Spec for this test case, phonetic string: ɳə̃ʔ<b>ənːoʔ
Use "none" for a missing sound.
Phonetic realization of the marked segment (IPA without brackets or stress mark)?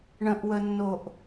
w